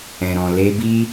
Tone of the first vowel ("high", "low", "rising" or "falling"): low